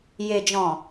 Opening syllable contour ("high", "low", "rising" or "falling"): low